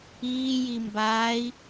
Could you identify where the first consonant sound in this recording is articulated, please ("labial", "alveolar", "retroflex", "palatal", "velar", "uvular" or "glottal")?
palatal